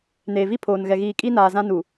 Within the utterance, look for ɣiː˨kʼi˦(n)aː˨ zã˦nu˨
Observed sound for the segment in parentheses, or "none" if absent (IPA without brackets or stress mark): n